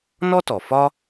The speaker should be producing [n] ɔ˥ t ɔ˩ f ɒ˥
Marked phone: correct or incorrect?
correct